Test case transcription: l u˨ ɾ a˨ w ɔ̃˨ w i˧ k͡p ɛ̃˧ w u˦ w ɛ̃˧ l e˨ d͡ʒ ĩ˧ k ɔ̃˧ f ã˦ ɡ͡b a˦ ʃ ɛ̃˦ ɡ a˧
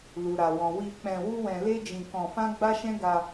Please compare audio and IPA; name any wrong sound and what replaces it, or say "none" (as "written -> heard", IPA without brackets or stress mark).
e˨ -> e˦